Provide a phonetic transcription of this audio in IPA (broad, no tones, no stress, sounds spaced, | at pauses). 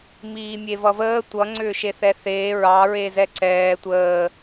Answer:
m iː mʲ e v ʌ v əː tʷ ʌ ŋ͡ǀ ʏː ʃ e θ ɛ θ eː ɹ ɑ ɹ e z ɛ ǀ ɛː tʷ əː